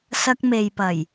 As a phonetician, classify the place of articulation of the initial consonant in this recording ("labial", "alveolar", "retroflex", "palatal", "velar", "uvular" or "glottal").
alveolar